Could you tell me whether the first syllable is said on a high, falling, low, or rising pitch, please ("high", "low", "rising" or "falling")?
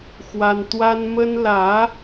high